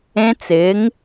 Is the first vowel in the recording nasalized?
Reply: yes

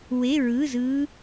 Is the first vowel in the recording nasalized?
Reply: no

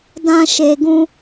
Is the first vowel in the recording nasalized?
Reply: yes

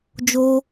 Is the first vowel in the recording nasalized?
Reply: no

